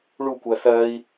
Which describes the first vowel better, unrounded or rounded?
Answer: rounded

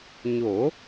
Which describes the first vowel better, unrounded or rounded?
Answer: rounded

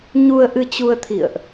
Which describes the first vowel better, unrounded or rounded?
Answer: rounded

